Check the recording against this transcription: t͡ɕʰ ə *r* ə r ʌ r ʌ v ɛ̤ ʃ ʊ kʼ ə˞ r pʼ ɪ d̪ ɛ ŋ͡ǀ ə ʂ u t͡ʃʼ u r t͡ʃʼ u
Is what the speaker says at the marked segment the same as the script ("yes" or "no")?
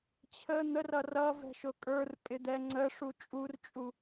no